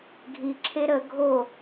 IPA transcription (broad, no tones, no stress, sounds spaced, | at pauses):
ɡʱ i ǁʰ e ɾ ə ɡʱ o